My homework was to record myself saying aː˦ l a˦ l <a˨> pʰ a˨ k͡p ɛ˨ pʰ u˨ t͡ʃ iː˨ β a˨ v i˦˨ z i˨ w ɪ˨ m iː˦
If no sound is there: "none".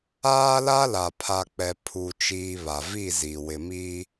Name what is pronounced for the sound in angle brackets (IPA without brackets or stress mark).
a˨